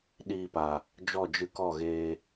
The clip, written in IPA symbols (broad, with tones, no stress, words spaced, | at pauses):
ɗiː˧pa˨ | d͡ʒɔ˦˨d͡ʒɨ˧kɔ˦˨ ɣeː˧